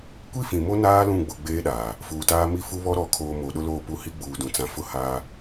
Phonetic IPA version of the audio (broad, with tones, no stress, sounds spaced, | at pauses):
kʷ i˦ f ĩ˨ m o˦ n aː˦ l ũ˦˨ ɡ͡b ʊ˦˨ ɡ͡b eː˦ ɗ aː˨ | f uː˨ t aː˦ m i˦˨ f u˦ β ɔ˦ ɾ ɔ˨˦ kʰ oː˨ m o˨˦ ɗ ʊ˦ l oː˦˨ p u˦ h i˦ ɡ͡b uː˨ d ũ˨ t͡s ã˨ f ʊ˦ h aː˦